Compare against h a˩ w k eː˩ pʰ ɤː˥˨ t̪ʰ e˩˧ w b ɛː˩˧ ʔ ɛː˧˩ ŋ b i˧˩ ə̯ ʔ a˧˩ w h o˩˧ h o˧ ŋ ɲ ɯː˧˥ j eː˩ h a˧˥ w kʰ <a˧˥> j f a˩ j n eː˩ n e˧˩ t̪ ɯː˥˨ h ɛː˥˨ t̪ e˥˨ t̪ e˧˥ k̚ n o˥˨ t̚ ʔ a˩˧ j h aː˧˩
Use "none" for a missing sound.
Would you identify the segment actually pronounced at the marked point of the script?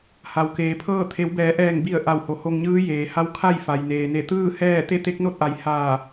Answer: a˥˨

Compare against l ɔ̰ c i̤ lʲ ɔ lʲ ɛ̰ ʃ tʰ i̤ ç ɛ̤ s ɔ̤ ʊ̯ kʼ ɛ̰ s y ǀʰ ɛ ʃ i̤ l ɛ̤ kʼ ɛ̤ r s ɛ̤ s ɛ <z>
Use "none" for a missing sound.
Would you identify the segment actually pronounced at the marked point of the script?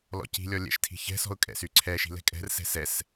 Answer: s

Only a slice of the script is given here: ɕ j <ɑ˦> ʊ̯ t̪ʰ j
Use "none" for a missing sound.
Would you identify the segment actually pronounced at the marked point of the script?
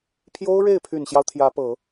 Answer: ɑ˦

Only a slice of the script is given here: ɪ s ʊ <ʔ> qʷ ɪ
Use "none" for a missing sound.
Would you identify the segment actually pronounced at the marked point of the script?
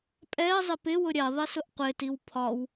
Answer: ʔ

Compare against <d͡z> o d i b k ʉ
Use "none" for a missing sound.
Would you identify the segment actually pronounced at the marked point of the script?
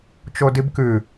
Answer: t͡ʃ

